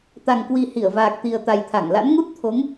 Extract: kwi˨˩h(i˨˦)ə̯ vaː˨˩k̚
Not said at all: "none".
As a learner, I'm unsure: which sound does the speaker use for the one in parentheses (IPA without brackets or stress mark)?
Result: i˧˩